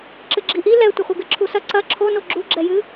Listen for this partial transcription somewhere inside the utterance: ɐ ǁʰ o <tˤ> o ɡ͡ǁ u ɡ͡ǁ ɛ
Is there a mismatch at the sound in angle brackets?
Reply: yes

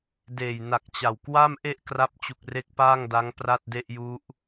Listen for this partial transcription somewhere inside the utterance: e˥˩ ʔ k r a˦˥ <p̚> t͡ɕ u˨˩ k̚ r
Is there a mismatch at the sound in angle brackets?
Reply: no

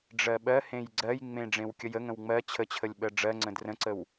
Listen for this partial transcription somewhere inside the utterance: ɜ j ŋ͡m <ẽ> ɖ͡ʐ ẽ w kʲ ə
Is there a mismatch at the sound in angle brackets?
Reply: no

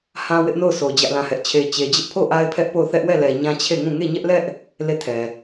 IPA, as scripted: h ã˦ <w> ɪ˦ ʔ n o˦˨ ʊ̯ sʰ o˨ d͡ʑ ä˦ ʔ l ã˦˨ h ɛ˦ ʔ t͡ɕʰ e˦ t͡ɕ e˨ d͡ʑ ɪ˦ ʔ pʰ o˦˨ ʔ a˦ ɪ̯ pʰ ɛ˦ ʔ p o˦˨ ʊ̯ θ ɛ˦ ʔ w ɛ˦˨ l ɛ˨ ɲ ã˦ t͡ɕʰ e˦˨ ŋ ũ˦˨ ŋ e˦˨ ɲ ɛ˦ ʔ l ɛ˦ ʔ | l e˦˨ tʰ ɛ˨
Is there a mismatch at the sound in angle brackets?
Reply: no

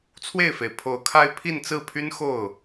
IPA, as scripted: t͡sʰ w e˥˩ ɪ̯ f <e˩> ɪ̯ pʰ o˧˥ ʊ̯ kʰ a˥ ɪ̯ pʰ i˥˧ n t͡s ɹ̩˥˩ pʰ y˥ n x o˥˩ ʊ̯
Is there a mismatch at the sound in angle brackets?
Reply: no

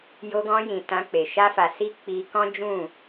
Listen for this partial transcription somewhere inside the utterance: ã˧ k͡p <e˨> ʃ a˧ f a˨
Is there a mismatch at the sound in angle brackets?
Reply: no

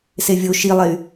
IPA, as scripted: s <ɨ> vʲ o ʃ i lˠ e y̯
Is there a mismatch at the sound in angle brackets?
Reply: yes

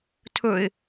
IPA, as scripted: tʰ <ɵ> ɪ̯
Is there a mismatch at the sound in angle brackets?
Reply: no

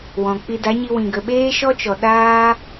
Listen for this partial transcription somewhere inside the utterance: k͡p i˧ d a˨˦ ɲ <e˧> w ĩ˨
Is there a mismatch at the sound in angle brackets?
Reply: yes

